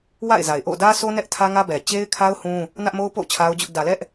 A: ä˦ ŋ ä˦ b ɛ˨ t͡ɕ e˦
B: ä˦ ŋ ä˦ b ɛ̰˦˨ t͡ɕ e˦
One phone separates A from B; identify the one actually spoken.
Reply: A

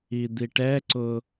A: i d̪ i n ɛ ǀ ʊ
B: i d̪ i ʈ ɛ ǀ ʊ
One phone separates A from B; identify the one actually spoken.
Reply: B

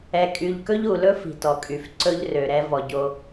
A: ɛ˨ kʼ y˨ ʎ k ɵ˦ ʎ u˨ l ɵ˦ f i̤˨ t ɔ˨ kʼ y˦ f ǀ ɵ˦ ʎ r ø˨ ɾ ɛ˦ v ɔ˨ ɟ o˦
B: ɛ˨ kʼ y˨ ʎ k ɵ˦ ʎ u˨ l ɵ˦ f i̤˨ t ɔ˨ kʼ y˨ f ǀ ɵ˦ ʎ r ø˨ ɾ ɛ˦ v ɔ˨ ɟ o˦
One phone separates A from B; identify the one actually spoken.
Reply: B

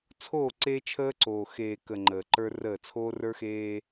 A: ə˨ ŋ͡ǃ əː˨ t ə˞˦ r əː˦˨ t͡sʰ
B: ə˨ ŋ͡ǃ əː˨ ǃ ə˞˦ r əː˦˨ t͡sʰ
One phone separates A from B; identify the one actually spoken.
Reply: B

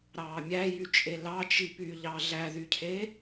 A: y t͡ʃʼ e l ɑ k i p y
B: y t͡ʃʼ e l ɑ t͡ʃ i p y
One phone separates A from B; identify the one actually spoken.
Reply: B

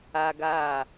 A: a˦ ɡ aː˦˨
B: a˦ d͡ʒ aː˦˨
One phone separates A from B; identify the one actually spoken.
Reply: A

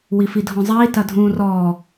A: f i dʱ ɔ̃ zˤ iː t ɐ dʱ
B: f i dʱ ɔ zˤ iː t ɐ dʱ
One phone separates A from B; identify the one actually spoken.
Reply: A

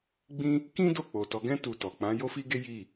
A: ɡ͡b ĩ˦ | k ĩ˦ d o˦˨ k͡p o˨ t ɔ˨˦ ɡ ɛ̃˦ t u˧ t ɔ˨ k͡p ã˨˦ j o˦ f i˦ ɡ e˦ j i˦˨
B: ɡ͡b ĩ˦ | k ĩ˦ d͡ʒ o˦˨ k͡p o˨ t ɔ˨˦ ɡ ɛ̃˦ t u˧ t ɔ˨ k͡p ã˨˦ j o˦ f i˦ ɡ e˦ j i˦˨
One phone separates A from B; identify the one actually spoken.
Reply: A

